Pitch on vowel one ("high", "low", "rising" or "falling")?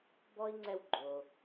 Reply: high